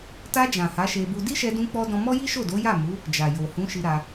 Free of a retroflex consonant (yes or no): yes